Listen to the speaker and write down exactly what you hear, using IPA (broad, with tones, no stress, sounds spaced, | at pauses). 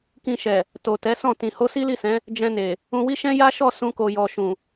k ĩ˧ ʃ ɛ˨ | t o˨ t ɛ˨˦ s ɔ̃˦˨ t ĩ˨ h o˧ s i˦ l i˦˨ s ɛ̃˨˦ | d͡ʒ ɛ̃˧ n e˨ | ũ˧ w i˦ ʃ ɛ̃˦ j a˦ ʃ ɔ˦˨ s ũ˧ k o˨ j ɔ˨ ʃ ũ˨